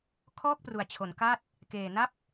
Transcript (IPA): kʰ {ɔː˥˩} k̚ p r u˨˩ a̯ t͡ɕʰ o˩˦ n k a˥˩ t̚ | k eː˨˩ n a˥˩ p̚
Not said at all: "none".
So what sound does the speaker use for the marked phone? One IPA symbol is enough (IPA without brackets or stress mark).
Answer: ɔː˥˩